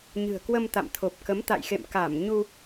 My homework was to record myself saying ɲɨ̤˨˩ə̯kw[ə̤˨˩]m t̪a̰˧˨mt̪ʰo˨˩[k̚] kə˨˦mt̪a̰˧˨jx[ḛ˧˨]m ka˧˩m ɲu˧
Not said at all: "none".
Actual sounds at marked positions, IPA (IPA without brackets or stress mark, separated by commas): ə˧, p̚, ḛ˧˨